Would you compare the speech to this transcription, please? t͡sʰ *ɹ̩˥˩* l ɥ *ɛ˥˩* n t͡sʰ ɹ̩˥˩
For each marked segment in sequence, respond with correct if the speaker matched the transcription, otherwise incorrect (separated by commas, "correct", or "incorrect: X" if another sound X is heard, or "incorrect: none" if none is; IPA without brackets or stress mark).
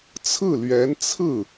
correct, incorrect: ɛ˧˥